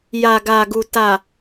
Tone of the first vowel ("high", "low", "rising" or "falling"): low